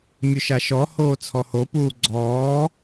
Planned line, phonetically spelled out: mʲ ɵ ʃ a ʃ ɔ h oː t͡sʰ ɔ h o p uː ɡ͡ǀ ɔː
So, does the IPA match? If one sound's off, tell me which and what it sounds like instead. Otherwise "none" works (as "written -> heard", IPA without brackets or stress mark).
none